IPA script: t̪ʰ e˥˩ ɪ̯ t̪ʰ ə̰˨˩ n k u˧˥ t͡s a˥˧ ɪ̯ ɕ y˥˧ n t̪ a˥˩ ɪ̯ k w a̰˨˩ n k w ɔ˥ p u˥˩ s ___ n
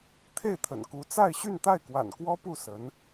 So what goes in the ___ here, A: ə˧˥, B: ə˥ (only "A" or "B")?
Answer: A